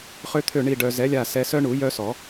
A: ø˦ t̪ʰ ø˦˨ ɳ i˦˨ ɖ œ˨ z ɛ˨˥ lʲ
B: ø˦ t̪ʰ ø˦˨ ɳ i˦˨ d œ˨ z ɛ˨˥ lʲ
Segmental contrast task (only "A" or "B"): A